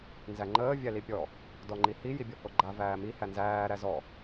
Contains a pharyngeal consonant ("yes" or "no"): no